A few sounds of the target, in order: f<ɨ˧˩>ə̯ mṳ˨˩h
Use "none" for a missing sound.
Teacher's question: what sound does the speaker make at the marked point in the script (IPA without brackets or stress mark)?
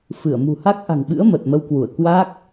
ɨ˧˩